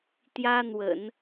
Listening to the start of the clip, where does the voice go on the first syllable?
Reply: high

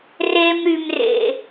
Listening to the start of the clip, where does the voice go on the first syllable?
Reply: high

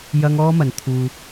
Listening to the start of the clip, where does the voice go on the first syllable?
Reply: high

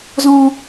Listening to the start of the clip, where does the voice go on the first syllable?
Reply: high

